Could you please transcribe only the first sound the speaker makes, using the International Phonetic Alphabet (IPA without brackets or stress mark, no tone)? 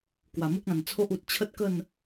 k